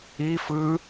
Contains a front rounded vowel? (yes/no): no